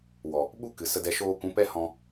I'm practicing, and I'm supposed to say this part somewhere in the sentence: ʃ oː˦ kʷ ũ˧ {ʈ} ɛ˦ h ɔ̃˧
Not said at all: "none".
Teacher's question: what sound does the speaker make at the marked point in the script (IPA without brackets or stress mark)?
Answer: p